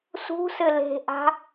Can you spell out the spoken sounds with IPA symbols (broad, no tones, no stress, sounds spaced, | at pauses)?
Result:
s ṳ s ɘ l e̤ ʔ a̤